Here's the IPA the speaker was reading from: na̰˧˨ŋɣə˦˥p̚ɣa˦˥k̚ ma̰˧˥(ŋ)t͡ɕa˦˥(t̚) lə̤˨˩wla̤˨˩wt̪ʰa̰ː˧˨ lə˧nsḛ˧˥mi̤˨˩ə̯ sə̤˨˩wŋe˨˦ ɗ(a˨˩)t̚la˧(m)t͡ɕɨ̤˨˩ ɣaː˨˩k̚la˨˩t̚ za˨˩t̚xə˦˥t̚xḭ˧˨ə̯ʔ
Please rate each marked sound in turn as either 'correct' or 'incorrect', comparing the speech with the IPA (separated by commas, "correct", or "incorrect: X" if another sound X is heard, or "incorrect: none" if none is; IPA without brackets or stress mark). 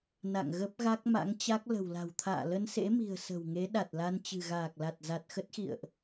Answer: correct, incorrect: k̚, correct, incorrect: n